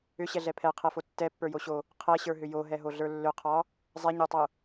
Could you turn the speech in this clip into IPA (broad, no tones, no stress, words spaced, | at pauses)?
ʏɕɛɮɛ pʰɛqʰɛfo tːɛpːə˞joɕo | qʰɛɕə˞ɦʏ joɦɛɦoɮə˞ lːʏqʰɒ | zˤɛɲə˞tˤo